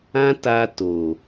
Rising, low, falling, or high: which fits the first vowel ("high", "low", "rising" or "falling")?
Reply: high